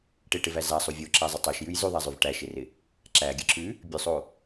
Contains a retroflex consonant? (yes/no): yes